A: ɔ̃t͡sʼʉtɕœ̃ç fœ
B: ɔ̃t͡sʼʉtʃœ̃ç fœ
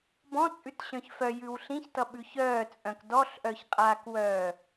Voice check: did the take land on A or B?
A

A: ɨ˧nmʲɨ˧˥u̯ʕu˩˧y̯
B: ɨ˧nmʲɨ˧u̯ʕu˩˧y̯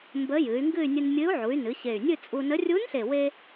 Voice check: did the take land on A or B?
A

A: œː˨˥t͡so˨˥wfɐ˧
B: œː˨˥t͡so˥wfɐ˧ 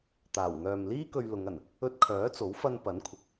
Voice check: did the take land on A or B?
A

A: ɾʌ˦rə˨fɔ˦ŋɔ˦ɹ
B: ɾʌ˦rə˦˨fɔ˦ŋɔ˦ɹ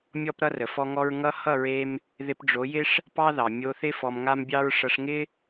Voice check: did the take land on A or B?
A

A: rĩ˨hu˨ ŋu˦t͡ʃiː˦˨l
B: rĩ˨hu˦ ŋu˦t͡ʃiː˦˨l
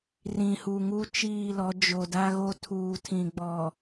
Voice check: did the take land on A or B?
A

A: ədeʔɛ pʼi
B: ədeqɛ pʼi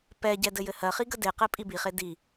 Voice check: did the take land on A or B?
B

